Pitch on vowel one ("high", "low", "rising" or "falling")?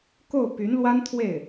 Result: falling